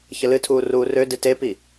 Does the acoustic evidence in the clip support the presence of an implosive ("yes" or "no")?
no